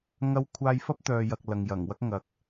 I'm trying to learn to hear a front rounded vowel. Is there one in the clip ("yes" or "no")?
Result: yes